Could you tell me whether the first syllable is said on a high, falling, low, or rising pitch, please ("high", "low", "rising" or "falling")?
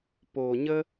low